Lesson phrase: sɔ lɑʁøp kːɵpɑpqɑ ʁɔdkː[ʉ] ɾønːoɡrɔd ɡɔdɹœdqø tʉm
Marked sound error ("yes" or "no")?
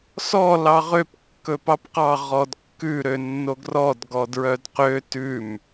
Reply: no